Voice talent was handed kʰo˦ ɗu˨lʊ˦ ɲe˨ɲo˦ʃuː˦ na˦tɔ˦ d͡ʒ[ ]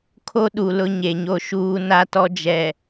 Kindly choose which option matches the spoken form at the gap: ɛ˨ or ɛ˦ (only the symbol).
ɛ˨